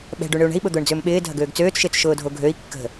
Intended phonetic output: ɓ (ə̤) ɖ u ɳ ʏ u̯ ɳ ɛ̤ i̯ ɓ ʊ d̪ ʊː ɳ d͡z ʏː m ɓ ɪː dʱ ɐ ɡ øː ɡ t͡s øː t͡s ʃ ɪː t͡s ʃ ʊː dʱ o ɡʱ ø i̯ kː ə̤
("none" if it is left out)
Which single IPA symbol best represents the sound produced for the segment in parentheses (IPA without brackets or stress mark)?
ɛ̤